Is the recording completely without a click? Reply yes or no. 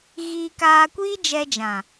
yes